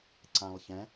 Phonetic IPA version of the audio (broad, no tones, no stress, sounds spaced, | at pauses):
ǀ ã lˠ ç ɛ̃